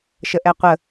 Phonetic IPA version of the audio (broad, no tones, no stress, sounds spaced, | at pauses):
ʃ ə ʔ ɛ qʷ ə